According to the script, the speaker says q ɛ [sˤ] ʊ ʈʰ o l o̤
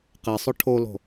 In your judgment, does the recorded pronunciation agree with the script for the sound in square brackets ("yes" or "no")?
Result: yes